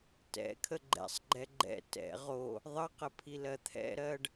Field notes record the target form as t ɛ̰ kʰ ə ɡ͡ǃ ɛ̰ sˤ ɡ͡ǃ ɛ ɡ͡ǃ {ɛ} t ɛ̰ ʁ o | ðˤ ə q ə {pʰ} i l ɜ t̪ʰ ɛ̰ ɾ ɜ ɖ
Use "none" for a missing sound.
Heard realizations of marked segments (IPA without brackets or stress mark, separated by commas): ɛ̰, pʰ